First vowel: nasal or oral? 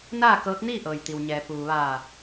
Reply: oral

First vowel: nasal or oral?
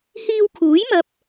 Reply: oral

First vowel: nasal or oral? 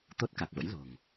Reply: oral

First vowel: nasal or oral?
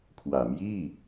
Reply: oral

